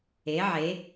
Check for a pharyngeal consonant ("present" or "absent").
present